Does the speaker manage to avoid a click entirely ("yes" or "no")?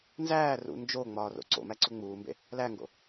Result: no